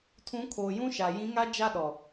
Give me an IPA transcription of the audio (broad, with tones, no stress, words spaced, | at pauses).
tʰũ˨˦kʰoː˨jũ˦ʃa˨ jĩ˨˦ŋa˦ d͡ʒa˦ɗɔ˨